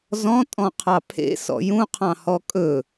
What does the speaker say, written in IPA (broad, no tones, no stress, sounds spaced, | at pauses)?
z ɔ̃ tʼ ɔ̃ qʰ ɑ pʰ ḛ s ɔ̰ j ũ qʰ ɑ̃ h ɔ kʼ ɵ